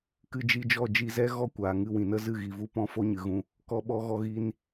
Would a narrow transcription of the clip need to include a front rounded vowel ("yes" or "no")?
no